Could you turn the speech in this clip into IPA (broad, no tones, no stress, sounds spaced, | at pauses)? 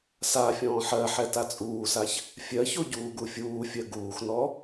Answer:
s a fʲ ɔ̃ː ħ ɜ ħ ɛ t a t͡sʼ uː s a ç | fʲ ɜ ç o ɟ uː ɡ u fʲ uː fʲ ɜ ɡ uː x n ɔ